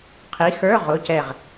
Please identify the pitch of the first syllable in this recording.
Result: rising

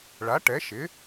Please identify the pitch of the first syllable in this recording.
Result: rising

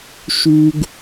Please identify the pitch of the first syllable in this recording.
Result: high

